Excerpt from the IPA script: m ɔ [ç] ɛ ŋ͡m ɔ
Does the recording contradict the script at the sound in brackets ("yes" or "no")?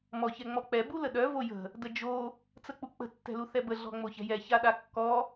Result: no